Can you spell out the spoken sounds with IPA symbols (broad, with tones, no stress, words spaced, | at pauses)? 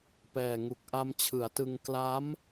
pɛː˨˩ŋu˨˩k̚ ʔa˧mt͡ɕʰɯ˩˦a̯tɯ˧ŋ kla˦˥m